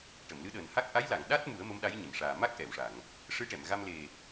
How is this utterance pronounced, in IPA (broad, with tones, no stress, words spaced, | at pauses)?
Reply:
ʈə˨˩˨mlɨ˧˥ɗəː˨˩nha˦˥k̚ ʔa˧˥jla˨˩˨ŋ ɗa˦˥t̚mu˨˩˦ə̯ mə˧˥mɗa˧˥jɲə˨˩˨m ʂaː˨˩ma˦˥k̚ʔɛ˨˩˨wʂa˨˩˨ŋ | ʂɨ˧˥ʈɛ˨˩˨mɣa˧m le˨˩